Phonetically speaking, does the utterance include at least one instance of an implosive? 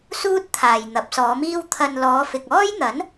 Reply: no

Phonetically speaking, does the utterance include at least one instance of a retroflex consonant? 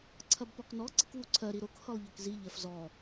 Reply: no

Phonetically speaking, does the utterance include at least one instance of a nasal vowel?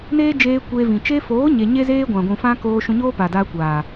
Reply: yes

